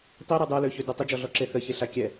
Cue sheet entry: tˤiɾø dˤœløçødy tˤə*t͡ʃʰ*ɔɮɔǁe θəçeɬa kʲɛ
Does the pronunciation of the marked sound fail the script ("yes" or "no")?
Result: yes